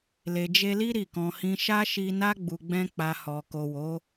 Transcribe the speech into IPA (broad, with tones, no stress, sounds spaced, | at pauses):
l e˨ d͡ʒ e˧ l i˦ ɾ i˦˨ k ɔ̃˧ h ĩ˦ ʃ a˦ ʃ i˧ n a˦ ɡ͡b u˧ ɡ͡b ɛ̃˦ k͡p a˧ h ɔ˨ k o˨ w o˨˦